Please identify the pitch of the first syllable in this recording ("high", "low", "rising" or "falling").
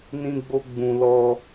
high